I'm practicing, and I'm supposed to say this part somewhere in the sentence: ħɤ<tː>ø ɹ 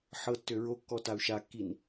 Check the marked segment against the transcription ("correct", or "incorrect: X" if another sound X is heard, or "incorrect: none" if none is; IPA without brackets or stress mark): correct